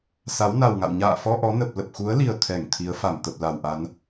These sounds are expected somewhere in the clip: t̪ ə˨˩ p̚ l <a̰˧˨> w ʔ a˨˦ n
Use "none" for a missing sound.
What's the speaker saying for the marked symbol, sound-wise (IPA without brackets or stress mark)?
a˧˩